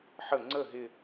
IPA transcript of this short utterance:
ħə ŋ͡ǀə ɦɪ

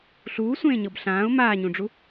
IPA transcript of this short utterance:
ɬuːsʷẽːɲɤb ɬãːʊ̯ maːɲũɖ͡ʐu

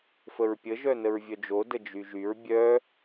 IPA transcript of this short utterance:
fəɹpʲə ʒœnəɹvʲœd͡ʒo dəd͡ʒyʒyɹ bʲœ

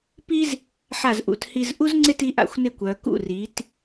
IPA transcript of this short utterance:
pi˥z | ħa˧˩z ʔṵ˩˧thi˧zʔu˥zŋ͡ǀɪ˥˧t i˥ʔa̰˧˩xʷnɪ˥˧kʷœ˩˧ kṵ˧˩ri˩˧t

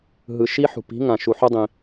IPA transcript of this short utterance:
ɦɯ˨ʃi˧ ħṳ˨pi̤˨˦ŋã˨ʃu˨ ħo˦dˤĩ˧

